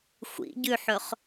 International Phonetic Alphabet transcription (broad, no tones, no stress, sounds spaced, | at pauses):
xʷ ḭ ɟ ʉ ħ ɵ χ